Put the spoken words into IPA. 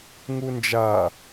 ŋ u n d͡ʒ a

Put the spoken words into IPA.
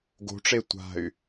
ɡ o̤ ʈ͡ʂ e tʷ a̤ y̯

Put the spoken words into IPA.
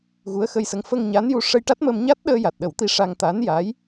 ɣ u˧˥ ə̯ x ə˧ j s ə˧˥ ŋ f ə˧ ŋ ɲ a˧˥ n j u˧ ʂ ə˧ j ʈ a˦˥ t̚ m ə˧ m ɲ a˦˥ t̚ ɗ əː˧ j a˨˩ t̚ ɗ ə˨˩˦ w t̪ i˧ ʂ a˧ ŋ t̪ a˧˥ n j a˧˥ j

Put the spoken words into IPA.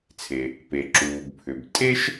t͡sʰ e˩ | p e˩ ǁ uː˩ b pʰ ʏ˩ b tʼ e˥ ʃ

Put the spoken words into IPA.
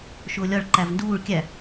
ʃ ʊː lʲ ɒ ɭ ǃ æ v n d uː ɭ kʲ æ

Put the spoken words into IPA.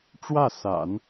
ʈ͡ʂ w ä˥˩ s a̰˨˩˦ n

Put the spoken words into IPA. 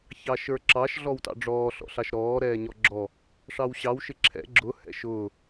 ç ɑ ʃ ə˞ ǁ ɑ ʃ ɮ ɔ w t ɑ̰ ɖ͡ʐ ɔː ɬ ɔ̰ ɬ ɑ ʃ ɾ ɔː ɾ ɛː ɲ ɔ ɡ͡ǁ ɔ | ʂ ɑ w ɕ ɑ w ʃ ɪ ǁʰ ɛ̰ ɡ͡ǁ ʊ h ɛ̰ ʃ ʊː

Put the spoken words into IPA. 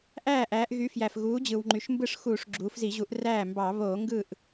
ʔ æː˥˩ ʔ æː˩˧ ʔ ɣ y˩˥ f j æ˩ f ɣ uː˩˥ d͡ʑ ɯ˩ w ŋ͡ǃ y˩ ʃ m b ɯ˥˩ ʂ x uː˧˩˧ ʂ ɡ͡ǁ uː˩˧ f z i˧˩˧ ʑ u˩˥ ʔ r æː˥˩ m b ɑ˧˩˧ β oː˧˩˧ ŋ ɡ ɯ˥˩ ʔ

